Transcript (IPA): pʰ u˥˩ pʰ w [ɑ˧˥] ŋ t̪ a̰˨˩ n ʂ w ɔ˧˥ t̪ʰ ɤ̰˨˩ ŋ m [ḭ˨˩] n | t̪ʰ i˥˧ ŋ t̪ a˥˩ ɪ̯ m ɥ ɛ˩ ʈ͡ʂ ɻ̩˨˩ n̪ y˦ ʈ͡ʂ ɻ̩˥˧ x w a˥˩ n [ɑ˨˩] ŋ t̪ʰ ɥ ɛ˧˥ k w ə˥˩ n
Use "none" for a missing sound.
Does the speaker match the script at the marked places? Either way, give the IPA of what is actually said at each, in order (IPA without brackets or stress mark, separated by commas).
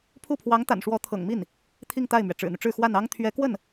ɑ˧˥, i˥˩, ɑ˥